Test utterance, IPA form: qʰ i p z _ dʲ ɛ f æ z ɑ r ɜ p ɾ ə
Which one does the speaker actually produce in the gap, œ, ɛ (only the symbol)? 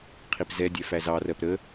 ɛ